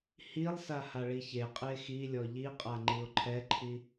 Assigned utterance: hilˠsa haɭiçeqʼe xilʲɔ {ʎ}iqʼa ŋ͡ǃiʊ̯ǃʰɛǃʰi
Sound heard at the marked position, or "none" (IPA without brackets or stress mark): ʎ